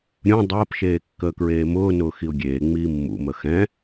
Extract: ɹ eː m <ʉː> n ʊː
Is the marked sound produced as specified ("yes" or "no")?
no